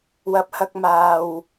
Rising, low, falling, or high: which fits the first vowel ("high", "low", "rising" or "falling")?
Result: low